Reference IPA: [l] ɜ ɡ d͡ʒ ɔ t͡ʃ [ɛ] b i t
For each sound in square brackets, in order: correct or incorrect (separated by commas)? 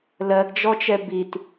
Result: correct, correct